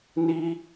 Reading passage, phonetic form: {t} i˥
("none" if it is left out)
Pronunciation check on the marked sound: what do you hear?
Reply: n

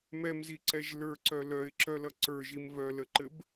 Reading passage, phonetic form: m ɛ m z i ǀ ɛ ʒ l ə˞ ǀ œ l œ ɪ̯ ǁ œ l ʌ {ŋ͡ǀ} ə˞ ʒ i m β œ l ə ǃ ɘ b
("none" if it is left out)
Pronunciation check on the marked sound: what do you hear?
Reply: ǀ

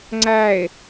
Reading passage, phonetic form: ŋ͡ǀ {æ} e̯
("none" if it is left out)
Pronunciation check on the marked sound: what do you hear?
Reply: æ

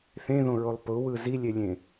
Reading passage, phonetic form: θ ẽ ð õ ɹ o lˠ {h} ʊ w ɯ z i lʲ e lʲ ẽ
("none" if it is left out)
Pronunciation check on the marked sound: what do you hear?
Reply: p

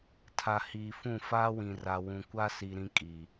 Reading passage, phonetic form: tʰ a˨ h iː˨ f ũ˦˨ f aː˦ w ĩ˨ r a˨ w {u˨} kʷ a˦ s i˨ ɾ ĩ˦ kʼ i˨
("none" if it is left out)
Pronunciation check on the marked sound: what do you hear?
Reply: ũ˨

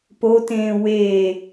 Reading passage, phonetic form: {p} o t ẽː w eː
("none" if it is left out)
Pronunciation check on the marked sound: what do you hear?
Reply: p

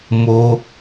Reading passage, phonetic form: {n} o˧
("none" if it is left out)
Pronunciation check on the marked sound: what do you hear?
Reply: m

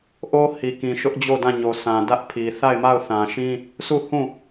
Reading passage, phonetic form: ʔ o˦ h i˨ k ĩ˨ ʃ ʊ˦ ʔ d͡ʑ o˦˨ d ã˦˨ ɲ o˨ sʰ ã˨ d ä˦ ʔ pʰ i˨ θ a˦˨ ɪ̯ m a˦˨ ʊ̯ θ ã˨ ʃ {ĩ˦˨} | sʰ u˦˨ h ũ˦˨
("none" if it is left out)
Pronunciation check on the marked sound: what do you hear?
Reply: ĩ˦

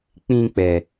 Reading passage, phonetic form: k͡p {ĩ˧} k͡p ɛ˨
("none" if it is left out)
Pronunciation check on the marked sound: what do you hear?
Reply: ĩ˧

